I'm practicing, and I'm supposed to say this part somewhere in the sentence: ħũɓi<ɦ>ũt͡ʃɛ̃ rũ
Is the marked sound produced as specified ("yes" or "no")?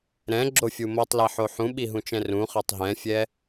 yes